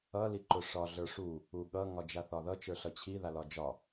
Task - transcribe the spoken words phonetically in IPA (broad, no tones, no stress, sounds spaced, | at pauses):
ʌ l i ǃ ʊ ʂ ɒ ɮ ə˞ ʂ u | u ɠ ʌ ŋ ɒ d͡ʒ a θ ɒ ð ʌ t͡ʃ ə˞ ɬ ʌ t͡ɕʰ i ð a l ɒ d͡ʒ ɒ